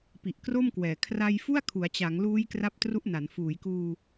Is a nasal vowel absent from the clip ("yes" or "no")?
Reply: yes